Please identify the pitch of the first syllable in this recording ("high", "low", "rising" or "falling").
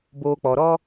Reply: low